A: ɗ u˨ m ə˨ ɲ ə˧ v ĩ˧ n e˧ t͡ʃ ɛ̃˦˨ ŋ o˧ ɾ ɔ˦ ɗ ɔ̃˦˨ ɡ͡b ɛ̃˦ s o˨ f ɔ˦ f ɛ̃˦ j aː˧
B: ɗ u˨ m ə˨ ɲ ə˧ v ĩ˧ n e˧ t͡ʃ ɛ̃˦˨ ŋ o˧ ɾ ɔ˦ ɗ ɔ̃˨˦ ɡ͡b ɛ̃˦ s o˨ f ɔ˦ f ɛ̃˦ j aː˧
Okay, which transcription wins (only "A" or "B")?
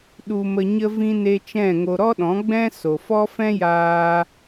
B